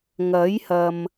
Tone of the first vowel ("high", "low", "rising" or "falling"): rising